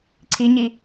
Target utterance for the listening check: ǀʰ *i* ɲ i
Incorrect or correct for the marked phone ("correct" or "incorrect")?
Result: correct